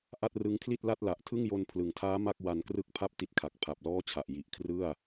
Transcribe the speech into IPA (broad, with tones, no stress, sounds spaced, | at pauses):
ʔ a˥˩ t̚ r ɯ˦˥ ŋ kʰ l i˥˩ t̚ l a˥˩ t̚ l a˨˩ ʔ tʰ ɯ˥˩ ŋ j o˧ n pʰ l ɯ˩˦ ŋ tʰ aː˦˥ m a˥˩ k̚ w a˧ n k r ɯ˥˩ k̚ pʰ a˥˩ p̚ t i˦˥ t̚ kʰ a˨˩ k̚ pʰ a˨˩ p̚ l ɔː˥˩ t͡ɕʰ a˨˩ ʔ j i˨˩ ʔ kʰ r ɯ˥˩ a̯